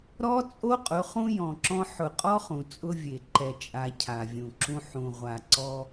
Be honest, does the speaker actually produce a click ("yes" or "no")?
yes